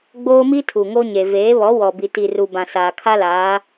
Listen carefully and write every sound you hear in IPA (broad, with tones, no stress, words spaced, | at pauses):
ɡ͡boː˦mi˦ tʰu˨ŋo˦ɲe˨ veː˨˦βɔ˨˦ wɔ˨bi˨ti˨ru˨ bã˨saː˨kʰa˦laː˨˦